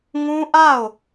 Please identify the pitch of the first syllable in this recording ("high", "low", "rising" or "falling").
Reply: high